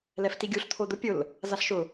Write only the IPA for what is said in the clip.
lɛftiɡʲuɬ t̪ʰod̪ʊ pʲʊl | zaɬʃʊ

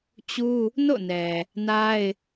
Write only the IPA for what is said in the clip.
t͡ɕu˦ | no̰˦˨nɛ˨ | na˦ɪ̯

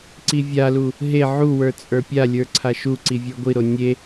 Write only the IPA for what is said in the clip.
ǀivʲalu | ɦe ʕuwə˞ t͡sʼə˞pʲalʲə˞ ǀʰaʃuǀi vʲə˞ɡʷiɾo nʲe

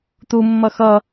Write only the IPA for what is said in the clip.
t̪umːʌ xʌ

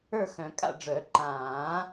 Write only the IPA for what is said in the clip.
ə˞˥˨xœ̃˨˩˦kʼa̰˥˨ɖ͡ʐœ˨˩˦ ǃãː˨˩˦

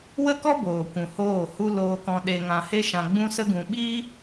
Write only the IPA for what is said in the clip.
wə˦kɔ˦boː˨kʷũ˨ hoː˦˨hu˦ loː˧ kɔ̃˧ɗe˧ŋã˧he˦ ʃã˧ɡ͡bũ˦sə˦ɡũ˧ ɓi˦

